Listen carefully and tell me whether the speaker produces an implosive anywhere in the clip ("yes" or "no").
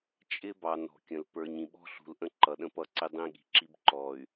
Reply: yes